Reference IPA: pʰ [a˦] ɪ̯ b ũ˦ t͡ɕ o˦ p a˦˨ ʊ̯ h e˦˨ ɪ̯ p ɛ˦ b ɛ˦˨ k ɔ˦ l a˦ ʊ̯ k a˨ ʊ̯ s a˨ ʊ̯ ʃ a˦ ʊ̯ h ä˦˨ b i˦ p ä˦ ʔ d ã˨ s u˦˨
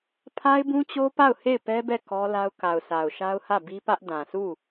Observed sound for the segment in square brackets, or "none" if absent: a˦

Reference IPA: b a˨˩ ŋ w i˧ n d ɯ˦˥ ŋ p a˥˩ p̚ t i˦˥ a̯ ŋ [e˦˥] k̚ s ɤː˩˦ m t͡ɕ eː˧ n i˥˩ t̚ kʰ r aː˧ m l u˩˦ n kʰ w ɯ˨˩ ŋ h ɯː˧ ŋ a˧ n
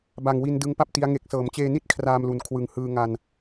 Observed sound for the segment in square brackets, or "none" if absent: e˨˩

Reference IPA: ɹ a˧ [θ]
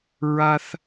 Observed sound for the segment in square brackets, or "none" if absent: θ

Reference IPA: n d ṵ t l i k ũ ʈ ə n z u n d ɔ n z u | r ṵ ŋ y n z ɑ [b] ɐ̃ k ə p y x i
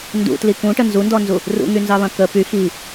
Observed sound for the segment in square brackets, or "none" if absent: β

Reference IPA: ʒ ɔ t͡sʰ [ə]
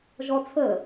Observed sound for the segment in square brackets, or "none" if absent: ə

